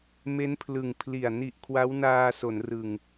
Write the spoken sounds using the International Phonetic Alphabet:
me˦˥npʰlɯ˨˩ŋpʰli˨˩a̯ ni˨˩ʔ kʰwa˦˥wnaː˧ so˩˦nrɯ˨˩ŋ

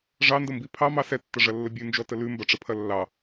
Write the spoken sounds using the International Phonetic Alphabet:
ʐɑndəmbi pʰɑmɑ sɛtːɐʐɐlːə bʲʉnd͡ʒɔtə lʉmbɐʈ͡ʂəpʰɐ lːɑ

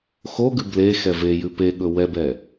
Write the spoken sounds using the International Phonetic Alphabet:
xoɡʉ ble xɛvejʉ peɠɵ wɛbɛ

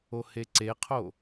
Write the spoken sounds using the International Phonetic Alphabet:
oheǀeqʰo

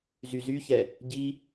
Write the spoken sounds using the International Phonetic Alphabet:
zyzyçɛ | ɟi

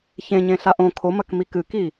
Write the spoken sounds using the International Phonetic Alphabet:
çẽɲẽɬa ʔõ kʰomɐkmi kɨki

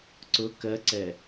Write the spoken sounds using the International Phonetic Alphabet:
ǀʊ kɜǀɛ

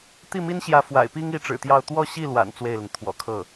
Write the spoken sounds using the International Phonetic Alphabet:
t̪i˥˩mi˥nɕjä˧˥ fwa̰˨˩ɪ̯pi˥ŋi˧˥ ʈ͡ʂɻ̩˨˩t̪jɑ˥˧ʊ̯ t̪wɔ˥˧ɕi˥˩lwa̰˨˩n t͡swe˥˩ɪ̯lə˩n t̪ʰwɔ̰˨˩kʰɤ˥˩

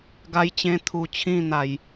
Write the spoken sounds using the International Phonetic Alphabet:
ɡa˦jt͡ɕẽ˦ t̪ʰu˧t͡ɕʰĩ˥˧ n̪a˧j

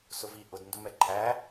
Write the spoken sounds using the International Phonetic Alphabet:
sʊvi ʔʊd ndʊmɛǃʰæ

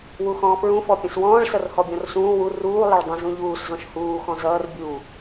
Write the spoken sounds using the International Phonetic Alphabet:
wuxɔ̃ːfɹũ fɔpʲə̃swɔ̃ːɭ sʌrhɔbʲɔ̃rsũː wu ruː lˠəɭdˤə̃ zũʎuːs zɔ̃ʃhuː xɔ̃zʌːr bʲu

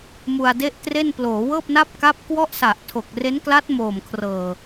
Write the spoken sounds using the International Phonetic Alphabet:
mu˧a̯de˥˩ʔtre˥˩n ploː˩˦wɤː˥˩p̚na˥˩p̚ ka˦˥p̚kwɔ˥˩ʔ sa˨˩ʔ tʰo˨˩k̚re˦˥nkla˦˥t̚ moː˨˩mkʰrɤː˨˩

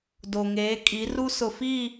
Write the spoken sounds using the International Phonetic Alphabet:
do˨ŋeː˨˦kʼi˨˦ru˦ sʊ˨fiː˦˨

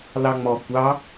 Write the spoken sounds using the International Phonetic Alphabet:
lɑŋ͡mɔ kʷɑ

